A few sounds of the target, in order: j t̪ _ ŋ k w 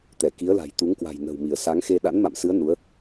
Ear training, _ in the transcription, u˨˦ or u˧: u˨˦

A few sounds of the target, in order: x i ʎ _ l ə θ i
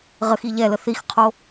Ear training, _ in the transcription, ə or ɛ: ɛ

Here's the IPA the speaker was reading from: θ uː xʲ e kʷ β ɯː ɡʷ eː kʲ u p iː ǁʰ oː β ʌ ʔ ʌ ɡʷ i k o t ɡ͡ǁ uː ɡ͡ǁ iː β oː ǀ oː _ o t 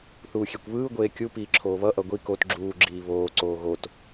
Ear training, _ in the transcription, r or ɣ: ɣ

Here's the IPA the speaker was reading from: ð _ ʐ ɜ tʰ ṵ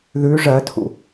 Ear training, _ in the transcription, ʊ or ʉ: ʉ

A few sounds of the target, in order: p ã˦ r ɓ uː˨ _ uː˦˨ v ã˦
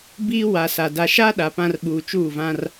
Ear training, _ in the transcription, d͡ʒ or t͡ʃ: t͡ʃ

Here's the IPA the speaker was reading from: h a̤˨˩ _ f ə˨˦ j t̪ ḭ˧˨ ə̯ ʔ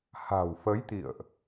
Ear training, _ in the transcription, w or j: w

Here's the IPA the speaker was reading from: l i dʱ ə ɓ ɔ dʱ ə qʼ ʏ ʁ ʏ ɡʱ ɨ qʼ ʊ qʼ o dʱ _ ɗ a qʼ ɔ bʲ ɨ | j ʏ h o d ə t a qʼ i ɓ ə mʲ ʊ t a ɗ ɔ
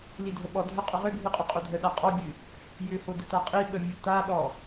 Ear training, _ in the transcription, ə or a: ə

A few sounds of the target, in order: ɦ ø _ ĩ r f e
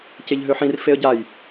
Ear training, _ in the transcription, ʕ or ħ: ħ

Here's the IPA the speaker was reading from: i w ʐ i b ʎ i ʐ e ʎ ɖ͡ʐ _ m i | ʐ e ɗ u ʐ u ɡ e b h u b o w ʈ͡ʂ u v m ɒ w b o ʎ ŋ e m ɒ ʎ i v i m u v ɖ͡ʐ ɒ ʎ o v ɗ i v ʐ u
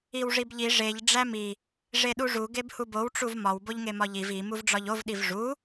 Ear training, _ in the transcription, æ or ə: æ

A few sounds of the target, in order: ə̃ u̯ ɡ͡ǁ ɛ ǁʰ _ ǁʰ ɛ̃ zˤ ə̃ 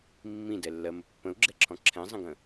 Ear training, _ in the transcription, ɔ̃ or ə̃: ɔ̃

